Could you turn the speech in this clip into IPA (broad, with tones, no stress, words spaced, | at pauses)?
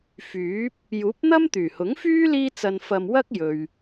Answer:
fyː˨˥p̚ | juː˨˥p̚n̪ɐ˥m t̪yː˨˩hʊ˨˥ŋfyː˥ liː˥ t͡sɐ˧nfɐ˧m wɐ˥k̚jɵ˨ɥ